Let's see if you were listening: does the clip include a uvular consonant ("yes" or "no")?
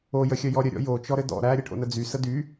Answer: no